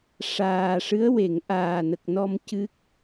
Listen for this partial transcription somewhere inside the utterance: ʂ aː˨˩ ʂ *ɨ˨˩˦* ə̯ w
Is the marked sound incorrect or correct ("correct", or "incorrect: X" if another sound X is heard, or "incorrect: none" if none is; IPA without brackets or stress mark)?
incorrect: ɨ˧˥